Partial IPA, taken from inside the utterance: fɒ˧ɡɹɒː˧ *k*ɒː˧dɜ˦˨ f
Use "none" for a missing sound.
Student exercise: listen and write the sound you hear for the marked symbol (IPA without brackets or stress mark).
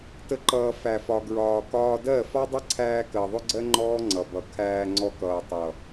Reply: k